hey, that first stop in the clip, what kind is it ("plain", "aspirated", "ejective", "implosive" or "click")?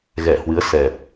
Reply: plain